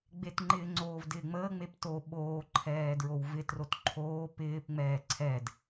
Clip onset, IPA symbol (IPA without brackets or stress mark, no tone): ɡ͡b